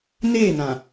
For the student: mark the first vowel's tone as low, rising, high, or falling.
falling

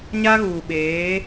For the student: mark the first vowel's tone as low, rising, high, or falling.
high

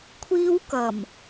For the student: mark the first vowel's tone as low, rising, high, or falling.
high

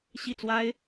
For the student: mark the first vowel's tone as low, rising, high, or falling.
falling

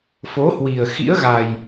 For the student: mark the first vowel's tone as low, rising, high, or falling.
rising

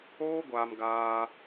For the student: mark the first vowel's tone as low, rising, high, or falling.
high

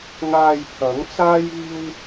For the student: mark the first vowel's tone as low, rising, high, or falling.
low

